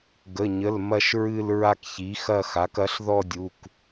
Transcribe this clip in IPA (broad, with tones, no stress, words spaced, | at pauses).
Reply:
ɡə˩˧˩ɲə˩˧˩l mɐ˥˧ʃɹɨ˥˧l ɹa˥˧kçi˩˥xɐ˥˧xa˩˥k ɐ˩˥ɬðɔ˥˧dʲu˩˧˩k